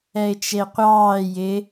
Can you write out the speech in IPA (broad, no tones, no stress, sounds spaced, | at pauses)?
ɛ ɪ̯ t͡ʃ e qʷ ɑː j ɪ